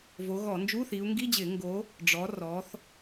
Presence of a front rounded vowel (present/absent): absent